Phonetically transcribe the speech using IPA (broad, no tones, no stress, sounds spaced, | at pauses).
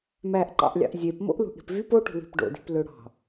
m æ ʔ ǃ ɑ̰ ʔ lʲ ɑ̰ ʔ zʲ e p m o̰ ʔ l ṳ ʔ ɽ i̤ p v y p o ʈ ṳ l i̤ p ɖ o̰ d i̤ p l ø ɽ ɑ̤